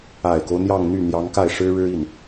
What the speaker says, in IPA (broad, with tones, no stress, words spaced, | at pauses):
a˨˩ɪ̯ko˦ʊ̯ n̪jɑ˥˧ŋ n̪y˥˩ n̪jɑ˧˥ŋka˥˩ɪ̯ ʂɻ̩˥ɻɻ̩˥i˥˩n